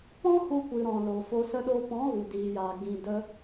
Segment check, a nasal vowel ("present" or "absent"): present